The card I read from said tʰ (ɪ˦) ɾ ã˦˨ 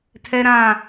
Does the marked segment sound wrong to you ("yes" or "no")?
yes